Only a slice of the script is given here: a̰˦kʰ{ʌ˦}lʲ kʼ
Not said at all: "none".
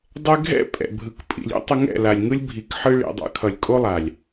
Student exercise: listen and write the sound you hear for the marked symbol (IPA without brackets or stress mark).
ʌ˨